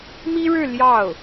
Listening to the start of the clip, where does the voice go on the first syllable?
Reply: high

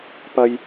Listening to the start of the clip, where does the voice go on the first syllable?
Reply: high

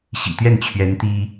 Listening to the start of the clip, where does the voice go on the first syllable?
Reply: low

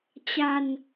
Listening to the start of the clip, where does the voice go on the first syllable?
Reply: low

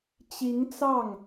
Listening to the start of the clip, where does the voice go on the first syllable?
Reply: rising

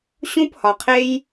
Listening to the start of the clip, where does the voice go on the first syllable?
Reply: high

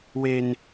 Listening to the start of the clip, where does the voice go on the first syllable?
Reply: high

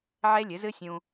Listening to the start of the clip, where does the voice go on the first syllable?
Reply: high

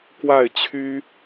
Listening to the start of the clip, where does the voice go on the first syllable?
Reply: falling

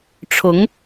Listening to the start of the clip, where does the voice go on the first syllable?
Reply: rising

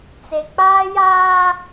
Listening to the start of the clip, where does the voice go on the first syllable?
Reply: low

